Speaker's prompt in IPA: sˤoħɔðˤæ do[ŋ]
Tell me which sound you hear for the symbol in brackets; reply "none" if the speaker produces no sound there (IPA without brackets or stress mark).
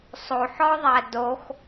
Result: x